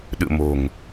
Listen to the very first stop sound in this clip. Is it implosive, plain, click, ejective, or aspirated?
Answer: implosive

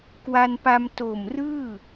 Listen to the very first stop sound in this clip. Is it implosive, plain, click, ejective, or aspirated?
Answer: plain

